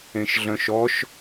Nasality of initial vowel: nasal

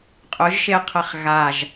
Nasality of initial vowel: oral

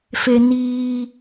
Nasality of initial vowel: oral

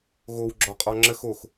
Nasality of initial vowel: oral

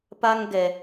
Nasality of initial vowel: oral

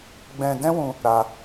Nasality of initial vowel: nasal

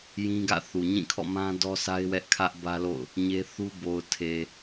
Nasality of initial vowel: nasal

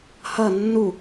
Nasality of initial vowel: oral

